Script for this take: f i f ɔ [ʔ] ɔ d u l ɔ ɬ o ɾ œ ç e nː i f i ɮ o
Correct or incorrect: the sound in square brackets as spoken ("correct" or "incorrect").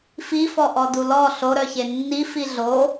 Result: correct